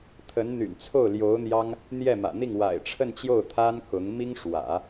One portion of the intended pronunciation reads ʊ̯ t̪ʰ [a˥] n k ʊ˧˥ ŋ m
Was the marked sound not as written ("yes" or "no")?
no